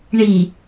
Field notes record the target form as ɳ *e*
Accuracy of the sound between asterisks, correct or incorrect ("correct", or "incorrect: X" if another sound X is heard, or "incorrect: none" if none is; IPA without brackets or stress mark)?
incorrect: i